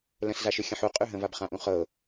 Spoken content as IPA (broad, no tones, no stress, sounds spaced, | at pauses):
l ə̃ s z a ʃ ʏ xʲ ə̃ ħ u qʼ ʉ ɦ ə̃ v a b χ ã ʔ ũ χ ɤ